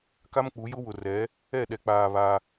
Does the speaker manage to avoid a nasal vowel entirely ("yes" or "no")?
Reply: yes